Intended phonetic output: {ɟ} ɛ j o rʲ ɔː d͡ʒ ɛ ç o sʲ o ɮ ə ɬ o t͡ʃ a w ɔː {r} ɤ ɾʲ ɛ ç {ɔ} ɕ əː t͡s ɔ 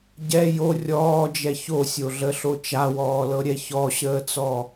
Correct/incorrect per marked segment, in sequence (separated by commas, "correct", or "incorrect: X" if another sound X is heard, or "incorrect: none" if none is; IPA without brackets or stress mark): correct, incorrect: l, correct